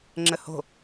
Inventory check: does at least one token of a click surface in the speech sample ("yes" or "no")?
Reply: yes